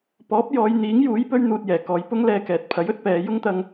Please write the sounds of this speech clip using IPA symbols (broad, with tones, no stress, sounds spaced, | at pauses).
p ɔː˨˥ p̚ j ɔː˨˧ j n̪ iː˨˥ ŋ j uː˨˥ j p ɵ˥ ɥ n̪ uː˧ t̚ j ɛː˨˩ k ɔː˨˧ j p ʊ˥ ŋ l ɛː˧ k ɛː˨ t̚ pʰ ɐ˨˥ j ɵ˨˥ t̚ p ɛː˨˧ j ʊ˥ ŋ t̪ ɐ˧ ŋ